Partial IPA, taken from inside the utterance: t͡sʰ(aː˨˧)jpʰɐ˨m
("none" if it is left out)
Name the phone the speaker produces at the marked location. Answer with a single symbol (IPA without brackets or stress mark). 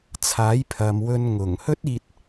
aː˨˥